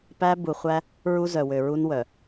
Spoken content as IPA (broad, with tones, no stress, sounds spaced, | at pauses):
p æ˦ b u˨ χʷ æ˦ | ɹ u˦ z œ˨ w ø˨ ɹ u˦ n w œ˨